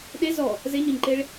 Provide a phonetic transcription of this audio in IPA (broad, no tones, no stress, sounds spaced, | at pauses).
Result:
ɗ e z ɔ | z e ɲ ɔ ɲ ǃ e ɭ